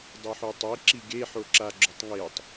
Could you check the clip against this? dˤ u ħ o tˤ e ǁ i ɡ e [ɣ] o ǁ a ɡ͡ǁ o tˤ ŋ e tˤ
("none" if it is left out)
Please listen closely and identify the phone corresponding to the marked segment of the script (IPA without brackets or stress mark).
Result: ħ